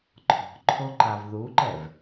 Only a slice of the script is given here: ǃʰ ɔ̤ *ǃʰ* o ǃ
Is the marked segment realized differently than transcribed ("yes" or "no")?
no